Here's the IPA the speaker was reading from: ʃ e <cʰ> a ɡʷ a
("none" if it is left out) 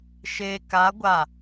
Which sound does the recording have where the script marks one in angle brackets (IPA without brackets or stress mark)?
k